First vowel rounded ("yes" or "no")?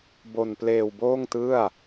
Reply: yes